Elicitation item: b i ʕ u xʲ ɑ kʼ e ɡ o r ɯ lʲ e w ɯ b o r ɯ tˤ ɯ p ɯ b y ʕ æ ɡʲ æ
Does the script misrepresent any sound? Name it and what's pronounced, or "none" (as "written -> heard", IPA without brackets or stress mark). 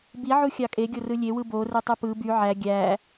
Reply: ɡ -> ɡʲ